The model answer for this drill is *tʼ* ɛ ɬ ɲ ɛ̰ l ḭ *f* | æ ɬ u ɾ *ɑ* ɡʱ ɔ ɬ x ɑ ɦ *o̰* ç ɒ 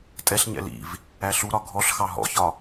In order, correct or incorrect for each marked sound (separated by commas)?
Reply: correct, incorrect, incorrect, incorrect